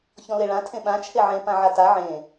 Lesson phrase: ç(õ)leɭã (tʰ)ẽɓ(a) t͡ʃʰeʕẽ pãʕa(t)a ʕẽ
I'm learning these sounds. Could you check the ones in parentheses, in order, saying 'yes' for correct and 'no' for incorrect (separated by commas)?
no, yes, no, yes